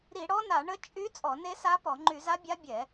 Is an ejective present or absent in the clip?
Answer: present